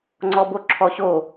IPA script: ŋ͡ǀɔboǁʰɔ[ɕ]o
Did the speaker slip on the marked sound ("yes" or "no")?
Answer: no